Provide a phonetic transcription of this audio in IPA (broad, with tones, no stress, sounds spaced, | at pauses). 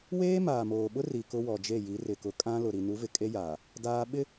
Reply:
w eː˦ m aː˨ m oː˨ ɓ ʊ˦ r i˨ k ʊ˦ w ɔ˨ d͡ʒ e˦˨ j i˨˦ r ɪ˨ k ʊ˨ kʼ ã˦ l ʊ˨ ɾ i˨ n u˨˦ v ɪ˨ kʼ e˦ j aː˨ | d aː˦ ɓ ɪ˦